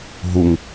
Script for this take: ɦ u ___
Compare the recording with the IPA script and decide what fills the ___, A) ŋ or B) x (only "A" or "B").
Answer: A